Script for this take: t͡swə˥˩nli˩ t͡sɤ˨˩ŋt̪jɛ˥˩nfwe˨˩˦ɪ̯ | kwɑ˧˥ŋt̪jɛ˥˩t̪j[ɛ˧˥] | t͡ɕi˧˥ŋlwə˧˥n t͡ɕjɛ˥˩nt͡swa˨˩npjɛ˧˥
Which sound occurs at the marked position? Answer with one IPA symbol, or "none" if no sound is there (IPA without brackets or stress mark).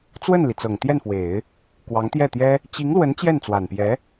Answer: ɛ˥